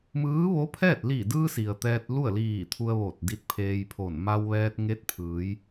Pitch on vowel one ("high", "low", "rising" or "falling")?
rising